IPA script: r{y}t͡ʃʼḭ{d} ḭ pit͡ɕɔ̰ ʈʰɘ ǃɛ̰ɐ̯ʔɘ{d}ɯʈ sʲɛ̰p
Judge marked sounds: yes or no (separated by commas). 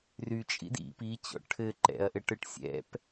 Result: yes, yes, no